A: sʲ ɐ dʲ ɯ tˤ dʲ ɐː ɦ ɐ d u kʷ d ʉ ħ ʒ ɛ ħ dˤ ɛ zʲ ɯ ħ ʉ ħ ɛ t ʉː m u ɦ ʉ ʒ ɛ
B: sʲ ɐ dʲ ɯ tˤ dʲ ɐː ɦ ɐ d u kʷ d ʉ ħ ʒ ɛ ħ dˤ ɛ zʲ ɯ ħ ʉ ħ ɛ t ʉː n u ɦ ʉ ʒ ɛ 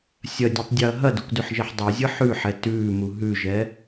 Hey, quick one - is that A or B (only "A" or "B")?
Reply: A